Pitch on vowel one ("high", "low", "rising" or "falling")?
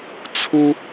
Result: high